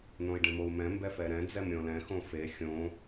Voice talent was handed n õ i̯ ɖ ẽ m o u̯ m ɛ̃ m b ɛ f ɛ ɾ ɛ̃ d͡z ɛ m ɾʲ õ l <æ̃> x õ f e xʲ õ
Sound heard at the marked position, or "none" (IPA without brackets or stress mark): ɛ̃